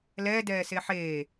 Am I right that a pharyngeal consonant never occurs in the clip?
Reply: no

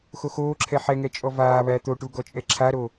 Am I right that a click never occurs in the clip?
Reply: no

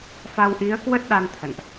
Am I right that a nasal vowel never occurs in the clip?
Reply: yes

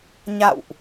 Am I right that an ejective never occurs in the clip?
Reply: yes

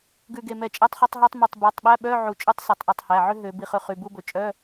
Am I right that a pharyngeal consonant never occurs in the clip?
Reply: no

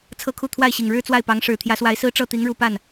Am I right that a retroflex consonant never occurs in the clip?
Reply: no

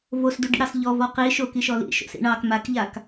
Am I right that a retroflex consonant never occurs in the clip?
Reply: no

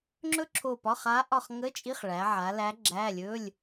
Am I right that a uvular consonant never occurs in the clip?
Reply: no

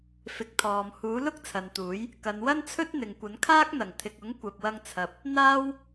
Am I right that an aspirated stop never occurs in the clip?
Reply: no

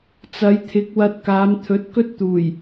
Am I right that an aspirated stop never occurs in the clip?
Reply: no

